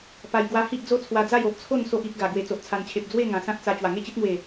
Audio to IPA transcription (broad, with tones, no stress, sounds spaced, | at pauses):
p a˧ j ɡ w a˧ h i˦ ʔ d͡z o˦ t͡sʰ w a˧ d͡z a˥˧ j o˨ ʔ t͡sʰ o˥˧ n s o˦ ʔ i˦ k̚ ɡ a˨˩ ɡ w e˨˩ t͡s o˨ ʔ t͡sʰ a˨˩ n t͡ɕʰ e˨ p̚ d͡z w e˥˧ ŋ ã˨˩ s ã˦ t̚ t͡s a˧ t͡ɕ w a˨˩ ŋ e˥˧ t͡ɕ i˦ t̚ ŋ w e˨˩